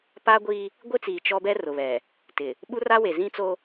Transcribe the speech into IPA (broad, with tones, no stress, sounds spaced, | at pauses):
p a˦ ɡʷ i˦ | ɡʷ ɪ˦ t͡s iː˨ t͡ʃ ɔ˦ b ɛ˦ r ʊ˨ β ɛ˨ | t ɪ˨ | ɓ u˦ r a˦ w e˨ z ĩ˦ t͡s o˦